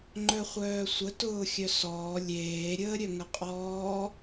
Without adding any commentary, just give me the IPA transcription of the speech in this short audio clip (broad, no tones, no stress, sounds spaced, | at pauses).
ŋ͡ǃ œ χʷ œː sʷ ə t ʊː xʲ œ s ɔː lʲ eː ɾʲ əː ɾʲ œ ŋ ə qʼ ɔː